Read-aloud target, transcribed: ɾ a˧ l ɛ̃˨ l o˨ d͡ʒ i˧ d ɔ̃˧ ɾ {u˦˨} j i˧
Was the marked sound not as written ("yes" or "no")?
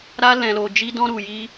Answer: yes